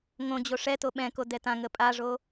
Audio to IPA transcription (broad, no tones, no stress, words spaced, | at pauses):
ŋõd͡ʑo ʂɛto ɓɛ̃ko dɛtãŋə pʼaʐo